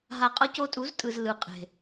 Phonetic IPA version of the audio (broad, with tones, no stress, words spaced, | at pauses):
ɦa˨qʼʌ˧ co˧tʼu˨˦ztʼɯ˨z lɯ˨qʼe̤˨